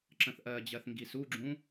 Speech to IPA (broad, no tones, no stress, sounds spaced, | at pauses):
ǁ ə̃ θ ʔ ɜ d͡ʑ ɜ θ ŋ ɡ i s u ɡ͡ǁ ũ